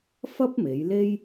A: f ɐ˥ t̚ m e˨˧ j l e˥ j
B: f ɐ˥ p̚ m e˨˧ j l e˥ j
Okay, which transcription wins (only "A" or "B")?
B